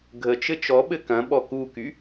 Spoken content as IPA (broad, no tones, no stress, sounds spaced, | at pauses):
ɡʱ ə t͡ʃ ɘ t͡ʃ ɔ ɓ ɘ k ɐ̃ ɓ ɔ k u k y